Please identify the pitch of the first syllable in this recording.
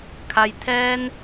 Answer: low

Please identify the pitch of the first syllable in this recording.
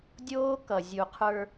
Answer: high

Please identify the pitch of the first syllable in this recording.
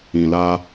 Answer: low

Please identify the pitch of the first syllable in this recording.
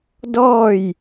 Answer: falling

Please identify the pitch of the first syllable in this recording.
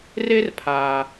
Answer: high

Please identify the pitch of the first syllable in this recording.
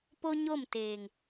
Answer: high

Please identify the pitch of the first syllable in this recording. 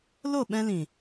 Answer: falling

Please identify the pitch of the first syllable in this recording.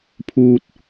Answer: high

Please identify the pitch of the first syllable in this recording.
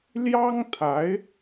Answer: high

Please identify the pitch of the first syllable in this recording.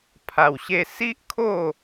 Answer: low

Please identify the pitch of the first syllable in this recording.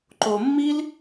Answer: low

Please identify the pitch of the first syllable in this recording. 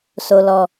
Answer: low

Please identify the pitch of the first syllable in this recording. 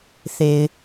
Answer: low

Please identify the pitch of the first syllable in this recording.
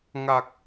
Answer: low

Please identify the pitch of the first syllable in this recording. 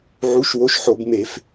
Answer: rising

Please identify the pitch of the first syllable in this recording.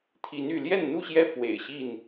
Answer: rising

